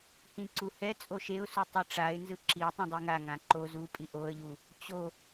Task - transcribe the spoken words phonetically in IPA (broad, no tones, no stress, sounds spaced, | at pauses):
h ĩ ǀ u h ɛ t͡sʼ o ʃ e ʊ̯ s u tˤ i ʈ͡ʂ a ɪ̯ n z ɯ ǁ i tˤ ĩ dˤ i ŋ a ŋ ã ǃ o z u pʼ i ʔ o ə̯ ʎ u | t͡ɕ o